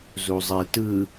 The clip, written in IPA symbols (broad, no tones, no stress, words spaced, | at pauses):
zuzˤetɯ